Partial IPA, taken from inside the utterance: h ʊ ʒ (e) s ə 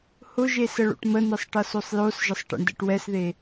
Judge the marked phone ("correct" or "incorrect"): correct